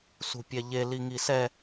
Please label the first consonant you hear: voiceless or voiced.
voiceless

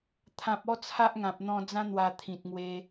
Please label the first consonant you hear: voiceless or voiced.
voiceless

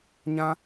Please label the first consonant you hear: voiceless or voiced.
voiced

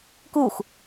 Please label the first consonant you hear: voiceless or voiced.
voiceless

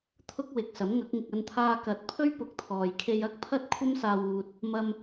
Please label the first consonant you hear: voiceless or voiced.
voiceless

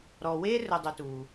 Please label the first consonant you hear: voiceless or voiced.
voiced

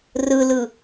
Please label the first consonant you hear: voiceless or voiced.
voiced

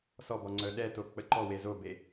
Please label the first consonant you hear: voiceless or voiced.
voiceless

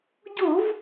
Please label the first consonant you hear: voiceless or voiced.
voiced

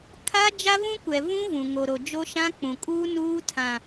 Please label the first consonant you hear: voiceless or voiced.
voiceless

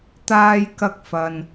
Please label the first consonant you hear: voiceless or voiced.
voiceless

